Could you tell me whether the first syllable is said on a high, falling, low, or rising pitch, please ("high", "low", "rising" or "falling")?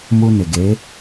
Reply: high